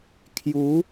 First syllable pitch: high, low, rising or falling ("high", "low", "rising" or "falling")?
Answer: rising